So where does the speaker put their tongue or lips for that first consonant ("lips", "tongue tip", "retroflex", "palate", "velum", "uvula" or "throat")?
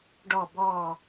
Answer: retroflex